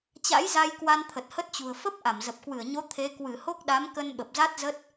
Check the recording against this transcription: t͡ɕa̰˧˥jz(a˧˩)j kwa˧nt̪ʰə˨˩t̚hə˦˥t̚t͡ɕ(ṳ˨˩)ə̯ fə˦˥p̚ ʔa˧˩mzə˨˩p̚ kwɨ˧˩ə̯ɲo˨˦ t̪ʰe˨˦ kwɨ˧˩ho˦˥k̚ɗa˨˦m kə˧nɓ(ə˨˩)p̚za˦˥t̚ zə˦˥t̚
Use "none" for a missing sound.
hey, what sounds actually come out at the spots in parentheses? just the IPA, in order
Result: a˧, ṳ˨˩, ə˨˩

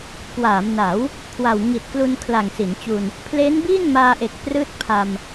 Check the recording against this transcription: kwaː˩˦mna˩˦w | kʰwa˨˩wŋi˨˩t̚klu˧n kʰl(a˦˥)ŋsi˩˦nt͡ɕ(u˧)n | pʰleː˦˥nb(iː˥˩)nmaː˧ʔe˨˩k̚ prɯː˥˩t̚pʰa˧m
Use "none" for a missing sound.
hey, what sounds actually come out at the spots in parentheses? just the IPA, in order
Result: a˨˩, u˧, iː˥˩

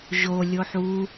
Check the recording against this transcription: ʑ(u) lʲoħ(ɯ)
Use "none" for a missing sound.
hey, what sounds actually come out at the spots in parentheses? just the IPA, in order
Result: o, u

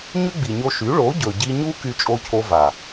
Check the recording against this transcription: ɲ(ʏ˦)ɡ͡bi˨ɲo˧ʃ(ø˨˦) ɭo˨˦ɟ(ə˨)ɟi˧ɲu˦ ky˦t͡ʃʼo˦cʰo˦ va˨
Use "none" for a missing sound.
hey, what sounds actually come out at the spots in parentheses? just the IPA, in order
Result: ʏ˦, y˨˦, ɵ˨

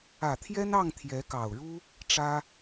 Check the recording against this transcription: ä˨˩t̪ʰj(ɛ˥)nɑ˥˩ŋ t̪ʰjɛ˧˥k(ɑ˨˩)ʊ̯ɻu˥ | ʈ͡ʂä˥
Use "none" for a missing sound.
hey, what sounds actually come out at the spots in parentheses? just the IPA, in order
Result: ɛ˥, ɑ˨˩

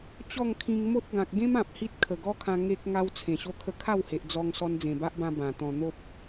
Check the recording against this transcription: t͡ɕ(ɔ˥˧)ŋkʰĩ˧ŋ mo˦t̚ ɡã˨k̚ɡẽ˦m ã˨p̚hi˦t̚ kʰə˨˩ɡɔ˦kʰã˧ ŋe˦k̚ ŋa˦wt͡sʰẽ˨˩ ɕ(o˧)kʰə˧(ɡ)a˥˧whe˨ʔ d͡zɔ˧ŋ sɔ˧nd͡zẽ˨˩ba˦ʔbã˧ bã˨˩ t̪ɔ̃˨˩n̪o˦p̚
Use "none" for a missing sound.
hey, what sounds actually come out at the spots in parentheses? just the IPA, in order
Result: ɔ˥˧, o˧, kʰ

